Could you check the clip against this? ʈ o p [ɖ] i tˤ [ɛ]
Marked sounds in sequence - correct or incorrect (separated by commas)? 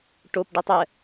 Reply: correct, correct